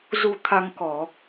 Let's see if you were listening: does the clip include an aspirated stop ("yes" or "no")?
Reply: yes